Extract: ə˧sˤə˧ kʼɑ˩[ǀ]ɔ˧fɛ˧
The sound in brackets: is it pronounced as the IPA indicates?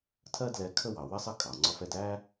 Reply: no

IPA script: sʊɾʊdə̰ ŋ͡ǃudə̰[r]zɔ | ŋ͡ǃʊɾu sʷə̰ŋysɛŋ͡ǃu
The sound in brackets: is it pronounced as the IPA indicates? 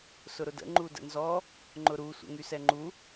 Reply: no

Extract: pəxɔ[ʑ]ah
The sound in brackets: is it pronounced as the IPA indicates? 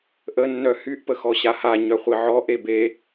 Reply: no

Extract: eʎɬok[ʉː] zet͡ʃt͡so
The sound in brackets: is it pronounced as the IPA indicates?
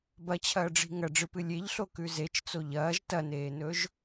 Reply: no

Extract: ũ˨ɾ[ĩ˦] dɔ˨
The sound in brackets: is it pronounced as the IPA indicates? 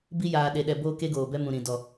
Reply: no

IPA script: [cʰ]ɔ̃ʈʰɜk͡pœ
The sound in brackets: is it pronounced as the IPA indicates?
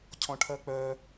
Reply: yes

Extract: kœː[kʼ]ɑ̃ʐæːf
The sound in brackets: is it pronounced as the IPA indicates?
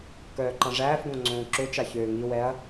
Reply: no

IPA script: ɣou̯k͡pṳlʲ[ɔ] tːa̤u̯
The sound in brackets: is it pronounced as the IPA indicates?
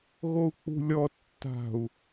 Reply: yes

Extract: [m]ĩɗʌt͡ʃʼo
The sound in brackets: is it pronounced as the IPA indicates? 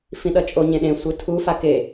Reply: no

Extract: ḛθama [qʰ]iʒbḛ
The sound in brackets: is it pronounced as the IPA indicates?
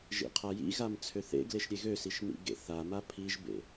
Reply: no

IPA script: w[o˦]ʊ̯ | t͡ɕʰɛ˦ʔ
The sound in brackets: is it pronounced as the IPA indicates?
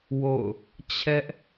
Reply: no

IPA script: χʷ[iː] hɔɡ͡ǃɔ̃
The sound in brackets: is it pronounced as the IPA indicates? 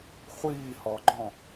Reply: yes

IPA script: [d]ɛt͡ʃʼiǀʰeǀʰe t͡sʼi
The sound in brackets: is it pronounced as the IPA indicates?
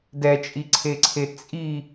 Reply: yes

